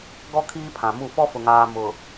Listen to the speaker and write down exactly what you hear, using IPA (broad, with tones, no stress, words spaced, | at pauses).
ɡɔ˦ kʰiː˦pʰã˨mu˦˨ fɔ˦fʊ˨ŋaː˨ mʊ˨